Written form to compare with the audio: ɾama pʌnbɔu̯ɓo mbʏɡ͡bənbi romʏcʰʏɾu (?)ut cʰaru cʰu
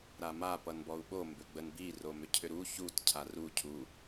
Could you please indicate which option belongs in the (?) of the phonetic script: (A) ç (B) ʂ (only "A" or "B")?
A